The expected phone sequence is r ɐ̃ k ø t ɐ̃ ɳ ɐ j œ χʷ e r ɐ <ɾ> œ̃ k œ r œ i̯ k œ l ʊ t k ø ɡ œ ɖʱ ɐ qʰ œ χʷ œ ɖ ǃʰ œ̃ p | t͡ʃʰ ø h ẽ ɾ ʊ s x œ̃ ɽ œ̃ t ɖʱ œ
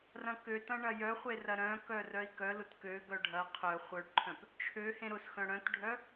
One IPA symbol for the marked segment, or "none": ɾ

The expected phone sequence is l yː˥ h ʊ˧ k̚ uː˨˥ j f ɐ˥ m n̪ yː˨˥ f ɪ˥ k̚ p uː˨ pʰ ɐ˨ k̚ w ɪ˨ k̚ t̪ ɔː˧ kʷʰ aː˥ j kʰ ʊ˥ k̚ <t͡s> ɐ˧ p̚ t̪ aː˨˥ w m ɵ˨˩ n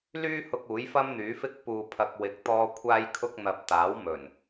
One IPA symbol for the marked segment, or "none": n̪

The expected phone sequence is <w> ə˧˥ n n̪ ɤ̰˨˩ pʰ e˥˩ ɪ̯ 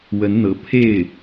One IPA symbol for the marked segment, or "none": w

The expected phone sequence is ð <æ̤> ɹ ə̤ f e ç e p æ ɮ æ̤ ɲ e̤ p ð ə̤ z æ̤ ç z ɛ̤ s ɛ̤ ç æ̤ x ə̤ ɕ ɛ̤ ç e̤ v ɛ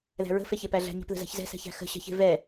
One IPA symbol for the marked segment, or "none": æ̤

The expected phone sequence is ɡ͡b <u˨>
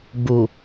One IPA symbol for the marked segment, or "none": u˨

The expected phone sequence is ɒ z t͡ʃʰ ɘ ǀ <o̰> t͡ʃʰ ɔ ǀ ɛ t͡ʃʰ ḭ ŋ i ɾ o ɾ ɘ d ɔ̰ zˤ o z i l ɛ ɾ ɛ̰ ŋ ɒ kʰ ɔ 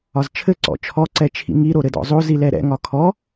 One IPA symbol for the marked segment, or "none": ɔ̰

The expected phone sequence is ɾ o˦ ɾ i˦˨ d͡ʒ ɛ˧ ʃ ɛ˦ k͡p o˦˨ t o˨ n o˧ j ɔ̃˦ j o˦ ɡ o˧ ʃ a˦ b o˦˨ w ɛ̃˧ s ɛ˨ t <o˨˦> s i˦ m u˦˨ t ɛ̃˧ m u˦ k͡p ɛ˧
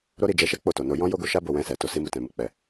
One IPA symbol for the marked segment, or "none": o˨˦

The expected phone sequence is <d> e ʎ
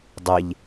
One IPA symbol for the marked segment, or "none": dˤ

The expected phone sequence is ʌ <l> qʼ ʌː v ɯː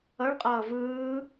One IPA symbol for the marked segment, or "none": ɭ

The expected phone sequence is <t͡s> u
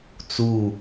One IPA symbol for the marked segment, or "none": t͡s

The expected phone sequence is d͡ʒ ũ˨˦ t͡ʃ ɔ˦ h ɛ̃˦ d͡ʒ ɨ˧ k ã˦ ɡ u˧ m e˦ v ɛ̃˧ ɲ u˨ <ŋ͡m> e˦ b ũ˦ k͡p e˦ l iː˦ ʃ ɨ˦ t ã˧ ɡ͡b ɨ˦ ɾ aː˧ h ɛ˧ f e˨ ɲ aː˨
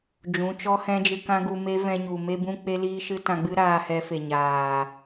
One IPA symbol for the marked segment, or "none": m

